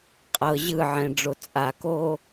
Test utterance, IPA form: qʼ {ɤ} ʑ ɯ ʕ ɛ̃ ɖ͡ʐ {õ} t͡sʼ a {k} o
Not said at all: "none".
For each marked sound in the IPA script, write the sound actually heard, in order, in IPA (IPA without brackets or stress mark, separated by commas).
ɤ, o, k